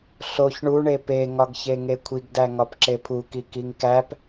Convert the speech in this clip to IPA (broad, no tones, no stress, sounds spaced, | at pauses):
ɬ o ç ɳ u ɳ e p e ŋ ɒ ɡ ç e ŋ e kʷʰ i ɡ d æ ŋ ɒ p ǁ e pʰ u k i k i ŋ k æ p